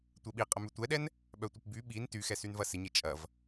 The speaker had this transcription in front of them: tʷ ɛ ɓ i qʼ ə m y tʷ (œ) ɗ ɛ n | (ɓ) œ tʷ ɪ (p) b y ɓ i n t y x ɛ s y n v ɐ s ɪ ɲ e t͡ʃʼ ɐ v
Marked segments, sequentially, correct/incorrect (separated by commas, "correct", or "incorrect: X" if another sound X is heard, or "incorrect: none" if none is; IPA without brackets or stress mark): incorrect: ɛ, correct, correct